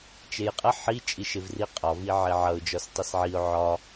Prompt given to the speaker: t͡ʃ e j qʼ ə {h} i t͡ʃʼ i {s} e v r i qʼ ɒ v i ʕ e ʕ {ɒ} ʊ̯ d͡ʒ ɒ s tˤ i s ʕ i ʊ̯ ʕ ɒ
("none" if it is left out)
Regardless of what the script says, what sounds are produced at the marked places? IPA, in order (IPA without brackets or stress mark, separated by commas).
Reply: ħ, ʃ, ʌ